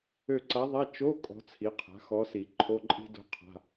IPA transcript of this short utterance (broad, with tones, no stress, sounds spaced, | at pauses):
ø˦˨ ǀ a˧˥ ðˤ a˧˥˧ t͡ʃ o˧˥˧ kʼ ɔ̤˧˥ t͡sʰ i˩˥ qʰ a̤˩˥ x ɔ˧˥ s i˨˩˦ ǃʰ o˧˥˧ ǃʼ i̤˥ d o̤˥ qʰ a̤˧˥˧